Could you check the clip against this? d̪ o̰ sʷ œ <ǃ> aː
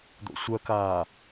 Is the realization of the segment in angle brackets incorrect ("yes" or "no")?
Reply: yes